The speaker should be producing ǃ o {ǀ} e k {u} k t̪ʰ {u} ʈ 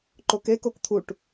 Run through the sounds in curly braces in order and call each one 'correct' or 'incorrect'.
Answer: incorrect: k, incorrect: o, correct

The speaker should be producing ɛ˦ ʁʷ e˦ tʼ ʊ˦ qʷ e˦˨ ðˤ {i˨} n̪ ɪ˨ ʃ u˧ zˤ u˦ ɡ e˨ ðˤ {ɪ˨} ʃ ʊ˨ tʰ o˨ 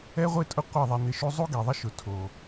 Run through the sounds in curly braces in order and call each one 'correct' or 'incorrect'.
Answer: incorrect: e˨, incorrect: ɪ˦

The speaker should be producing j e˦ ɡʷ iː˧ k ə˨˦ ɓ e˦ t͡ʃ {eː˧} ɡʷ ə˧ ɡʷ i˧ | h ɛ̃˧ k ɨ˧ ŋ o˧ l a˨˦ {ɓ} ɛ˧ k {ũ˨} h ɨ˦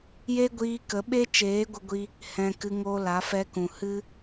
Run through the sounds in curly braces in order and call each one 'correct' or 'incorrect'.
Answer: incorrect: eː˨˦, incorrect: f, correct

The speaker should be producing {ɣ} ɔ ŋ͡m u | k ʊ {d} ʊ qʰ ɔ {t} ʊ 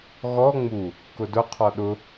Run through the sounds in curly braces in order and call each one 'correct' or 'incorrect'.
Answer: correct, correct, incorrect: ɗ

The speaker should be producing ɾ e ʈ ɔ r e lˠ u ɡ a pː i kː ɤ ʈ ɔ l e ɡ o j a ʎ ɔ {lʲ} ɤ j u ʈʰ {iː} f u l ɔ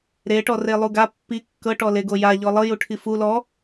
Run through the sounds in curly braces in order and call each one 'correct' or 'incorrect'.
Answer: incorrect: lˠ, incorrect: i

